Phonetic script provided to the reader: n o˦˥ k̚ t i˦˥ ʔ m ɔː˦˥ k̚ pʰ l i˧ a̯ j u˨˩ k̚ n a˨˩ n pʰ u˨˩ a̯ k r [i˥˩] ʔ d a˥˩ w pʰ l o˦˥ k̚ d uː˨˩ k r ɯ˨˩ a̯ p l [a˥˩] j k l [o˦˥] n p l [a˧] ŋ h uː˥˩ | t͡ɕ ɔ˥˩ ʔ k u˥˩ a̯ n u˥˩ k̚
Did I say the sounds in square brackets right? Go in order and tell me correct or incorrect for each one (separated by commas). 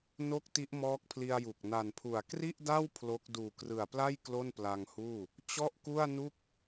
correct, correct, incorrect, correct